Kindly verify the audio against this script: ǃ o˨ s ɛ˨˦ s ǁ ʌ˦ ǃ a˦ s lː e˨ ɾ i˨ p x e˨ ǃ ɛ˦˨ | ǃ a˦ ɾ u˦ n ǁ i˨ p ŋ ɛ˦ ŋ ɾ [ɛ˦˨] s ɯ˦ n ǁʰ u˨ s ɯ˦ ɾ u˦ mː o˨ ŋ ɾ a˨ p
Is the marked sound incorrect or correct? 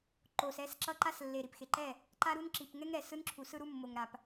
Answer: incorrect